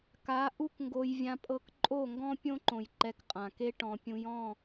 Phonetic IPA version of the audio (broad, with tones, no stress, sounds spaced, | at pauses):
k a˨˦ ʔ u˦ k ŋ ɡ o˧ j vʲ ã˧ pʼ ɤ˧ k ǃʼ o˦˨ ŋ ɡ ɔ̃˦ pʲ õ˦ ǃ õ˨ j ǃ ɛ˧ k qʼ ã˨ k e˦ ʈ ɔ̃˨ pʲ ũ˧ j ɔ̃˦˨